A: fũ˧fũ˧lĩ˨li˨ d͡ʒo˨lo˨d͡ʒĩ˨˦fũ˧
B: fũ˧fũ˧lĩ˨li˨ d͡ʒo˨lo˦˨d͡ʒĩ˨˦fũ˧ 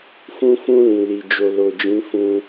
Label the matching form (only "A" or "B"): A